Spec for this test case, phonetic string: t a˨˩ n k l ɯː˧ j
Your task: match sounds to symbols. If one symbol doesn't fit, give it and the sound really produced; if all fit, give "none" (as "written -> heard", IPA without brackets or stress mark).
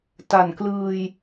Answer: none